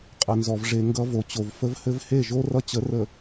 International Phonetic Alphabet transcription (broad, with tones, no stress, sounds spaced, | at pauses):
qʼ ɘ˨ n z ɔ˨ v ʐ e˨ ŋ ɡ ʌ˦ v o˨ t͡ɕ o˨ v f ə˦ v h ɘ˦ v h e˦˨ ʒ o˦ r ʌ˦ t͡ɕ ə˨˦ r ə˨